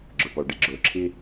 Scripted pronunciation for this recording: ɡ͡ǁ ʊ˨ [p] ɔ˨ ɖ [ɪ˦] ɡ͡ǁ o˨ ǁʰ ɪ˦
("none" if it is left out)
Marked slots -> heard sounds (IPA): p, ɪ˦

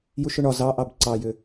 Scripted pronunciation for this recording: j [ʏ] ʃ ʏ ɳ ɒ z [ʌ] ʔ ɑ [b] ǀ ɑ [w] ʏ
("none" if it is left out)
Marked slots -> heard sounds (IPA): u, ɑ, b, j

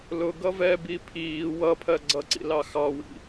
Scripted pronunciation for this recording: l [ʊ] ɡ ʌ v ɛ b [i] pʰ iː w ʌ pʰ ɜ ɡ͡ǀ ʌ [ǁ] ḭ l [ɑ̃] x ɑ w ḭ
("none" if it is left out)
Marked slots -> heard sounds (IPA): ʊ, i, ǀ, ɑ

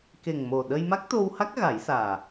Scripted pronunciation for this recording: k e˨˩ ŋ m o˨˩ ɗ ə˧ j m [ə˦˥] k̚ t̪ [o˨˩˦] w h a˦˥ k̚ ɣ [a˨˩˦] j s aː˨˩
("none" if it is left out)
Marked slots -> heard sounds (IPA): a˦˥, o˧, a˨˩˦

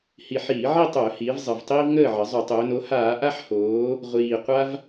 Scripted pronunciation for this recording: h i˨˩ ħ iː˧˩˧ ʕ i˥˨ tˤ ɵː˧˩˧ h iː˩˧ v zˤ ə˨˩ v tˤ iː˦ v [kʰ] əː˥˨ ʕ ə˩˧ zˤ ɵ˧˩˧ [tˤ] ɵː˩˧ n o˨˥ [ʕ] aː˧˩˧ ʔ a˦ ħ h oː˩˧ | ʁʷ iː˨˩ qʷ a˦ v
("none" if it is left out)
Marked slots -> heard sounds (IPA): ŋ, tˤ, h

